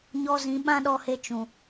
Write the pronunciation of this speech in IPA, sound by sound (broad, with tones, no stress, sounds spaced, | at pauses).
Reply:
ɲ ɔ˦ z ĩ˨˦ ɓ ã˦ ɗ ɔ˧ h e˧ t͡ʃ ũ˨